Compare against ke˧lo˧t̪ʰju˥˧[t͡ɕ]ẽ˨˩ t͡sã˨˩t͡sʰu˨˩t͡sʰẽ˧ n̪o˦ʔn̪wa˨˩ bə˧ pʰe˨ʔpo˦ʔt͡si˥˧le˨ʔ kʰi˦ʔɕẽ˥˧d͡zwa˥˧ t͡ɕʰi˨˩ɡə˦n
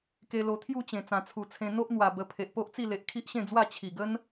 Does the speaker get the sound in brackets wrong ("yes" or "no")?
no